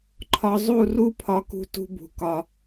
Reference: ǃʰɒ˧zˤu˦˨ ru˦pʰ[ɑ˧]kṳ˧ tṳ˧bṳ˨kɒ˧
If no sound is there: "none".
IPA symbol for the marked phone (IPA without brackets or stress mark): ɒ˧